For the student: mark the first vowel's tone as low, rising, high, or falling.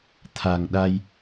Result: low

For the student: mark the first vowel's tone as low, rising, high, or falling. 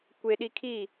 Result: high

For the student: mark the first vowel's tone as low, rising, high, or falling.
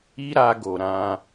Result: high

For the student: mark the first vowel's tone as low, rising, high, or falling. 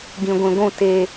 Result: low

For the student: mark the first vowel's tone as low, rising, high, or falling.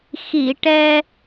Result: low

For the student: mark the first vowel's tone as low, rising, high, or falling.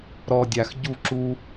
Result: low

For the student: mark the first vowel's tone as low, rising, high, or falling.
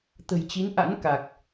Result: low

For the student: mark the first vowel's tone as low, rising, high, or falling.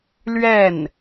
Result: falling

